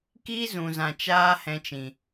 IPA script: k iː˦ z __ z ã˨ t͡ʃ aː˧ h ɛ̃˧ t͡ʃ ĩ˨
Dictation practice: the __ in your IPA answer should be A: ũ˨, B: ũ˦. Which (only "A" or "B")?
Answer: A